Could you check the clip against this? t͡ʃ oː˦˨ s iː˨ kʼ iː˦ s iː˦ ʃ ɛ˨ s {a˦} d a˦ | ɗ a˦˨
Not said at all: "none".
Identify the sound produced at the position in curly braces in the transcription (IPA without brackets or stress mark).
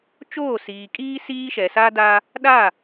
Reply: a˦